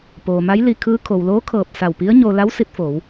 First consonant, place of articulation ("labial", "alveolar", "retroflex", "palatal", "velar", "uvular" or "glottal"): labial